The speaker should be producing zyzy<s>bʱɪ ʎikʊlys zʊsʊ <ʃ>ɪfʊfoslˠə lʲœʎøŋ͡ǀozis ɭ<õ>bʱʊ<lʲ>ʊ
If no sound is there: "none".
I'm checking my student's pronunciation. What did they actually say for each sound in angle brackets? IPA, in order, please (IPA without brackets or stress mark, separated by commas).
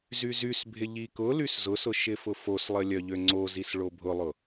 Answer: s, ʃ, o, lˠ